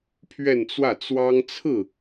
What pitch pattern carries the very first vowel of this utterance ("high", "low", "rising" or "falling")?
falling